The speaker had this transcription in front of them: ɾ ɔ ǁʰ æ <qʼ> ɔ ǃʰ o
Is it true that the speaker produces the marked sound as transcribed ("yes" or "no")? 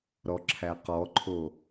no